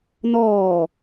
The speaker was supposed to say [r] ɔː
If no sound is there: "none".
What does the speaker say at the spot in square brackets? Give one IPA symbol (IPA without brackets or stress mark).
n